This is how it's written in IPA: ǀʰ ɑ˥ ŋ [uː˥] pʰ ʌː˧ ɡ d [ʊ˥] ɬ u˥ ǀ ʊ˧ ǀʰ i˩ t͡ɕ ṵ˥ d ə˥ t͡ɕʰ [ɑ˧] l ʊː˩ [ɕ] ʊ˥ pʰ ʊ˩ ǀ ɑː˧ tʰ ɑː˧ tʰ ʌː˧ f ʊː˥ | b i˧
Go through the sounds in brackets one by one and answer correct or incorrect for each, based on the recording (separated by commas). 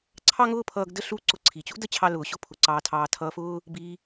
incorrect, incorrect, correct, correct